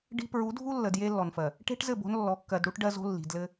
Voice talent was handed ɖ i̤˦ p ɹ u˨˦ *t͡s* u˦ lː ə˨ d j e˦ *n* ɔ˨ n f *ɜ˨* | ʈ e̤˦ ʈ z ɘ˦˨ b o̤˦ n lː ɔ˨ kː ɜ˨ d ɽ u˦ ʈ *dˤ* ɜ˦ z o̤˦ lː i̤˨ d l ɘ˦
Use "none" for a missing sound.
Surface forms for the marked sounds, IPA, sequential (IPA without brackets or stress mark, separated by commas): dʱ, lː, ɜ˨, ɖ